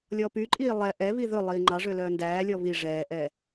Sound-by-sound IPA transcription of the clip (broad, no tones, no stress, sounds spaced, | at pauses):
lʲ ɔ p y ǃʼ iː lˠ ɛ ʔ ɛ β i ð ɵ lˠ iː ŋ͡ǃ ɑ ʐ ø l œː n d æː lʲ ɔ β i ʐ ɛː ʔ ɛː